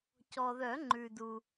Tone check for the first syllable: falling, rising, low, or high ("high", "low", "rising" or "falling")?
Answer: low